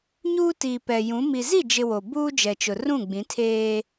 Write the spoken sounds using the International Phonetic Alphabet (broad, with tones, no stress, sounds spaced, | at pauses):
ɲ uː˦ t iː˨ p ɛ˨ j ũ˨˦ m i˨ z i˦˨ d͡ʒ ɪ˨ w o˨ b uː˦ d͡ʒ ɛ˨ t͡ʃ ʊ˨ r ũ˦˨ ɡ͡b ĩ˨˦ tʰ eː˦